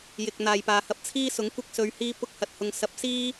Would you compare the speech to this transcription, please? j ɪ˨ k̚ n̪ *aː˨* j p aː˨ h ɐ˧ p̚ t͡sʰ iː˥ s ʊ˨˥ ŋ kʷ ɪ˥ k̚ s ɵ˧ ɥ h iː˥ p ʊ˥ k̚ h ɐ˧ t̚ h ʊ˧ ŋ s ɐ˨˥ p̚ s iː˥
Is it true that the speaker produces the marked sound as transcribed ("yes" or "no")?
yes